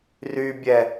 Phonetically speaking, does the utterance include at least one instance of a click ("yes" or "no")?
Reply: no